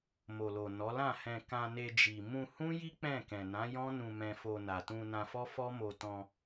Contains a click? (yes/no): no